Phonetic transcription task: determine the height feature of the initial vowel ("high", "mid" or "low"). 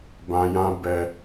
low